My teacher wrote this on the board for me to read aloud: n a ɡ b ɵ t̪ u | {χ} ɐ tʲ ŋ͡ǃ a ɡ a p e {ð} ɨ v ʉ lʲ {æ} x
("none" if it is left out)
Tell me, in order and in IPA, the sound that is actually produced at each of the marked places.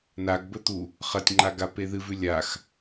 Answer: χ, ð, a

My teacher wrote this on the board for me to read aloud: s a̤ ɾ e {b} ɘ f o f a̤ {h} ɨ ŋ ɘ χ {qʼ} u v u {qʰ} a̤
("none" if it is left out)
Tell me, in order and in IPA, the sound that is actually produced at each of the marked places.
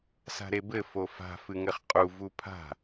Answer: b, f, qʼ, pʰ

